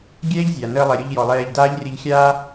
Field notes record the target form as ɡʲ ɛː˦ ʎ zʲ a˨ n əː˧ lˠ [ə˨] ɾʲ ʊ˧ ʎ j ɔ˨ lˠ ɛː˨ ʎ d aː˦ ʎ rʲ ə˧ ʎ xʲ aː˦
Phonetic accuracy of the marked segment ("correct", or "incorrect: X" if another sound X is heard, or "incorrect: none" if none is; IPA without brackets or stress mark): incorrect: ɛ˨